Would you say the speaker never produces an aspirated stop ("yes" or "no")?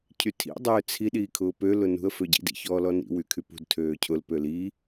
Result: no